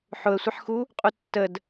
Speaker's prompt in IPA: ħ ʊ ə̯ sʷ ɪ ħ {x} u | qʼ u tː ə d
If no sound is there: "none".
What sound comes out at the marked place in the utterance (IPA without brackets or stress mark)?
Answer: x